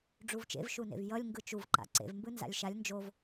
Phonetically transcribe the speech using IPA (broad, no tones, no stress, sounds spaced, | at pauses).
ɖ͡ʐ u v t͡ʃ ḛ v ʃ u n ḛ v j ʌ lʲ ŋ ɡ ɯ t͡ʃ u v ǃ a̰ ǀ ḛ v m b ɯ n z a̰ lʲ ʃ a lʲ n d͡ʒ o v